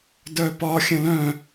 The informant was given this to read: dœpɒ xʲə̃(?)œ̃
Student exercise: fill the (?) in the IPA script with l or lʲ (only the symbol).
l